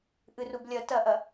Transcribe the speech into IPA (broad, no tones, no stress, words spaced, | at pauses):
ʔɨrub lʲɐ tɐʔɐ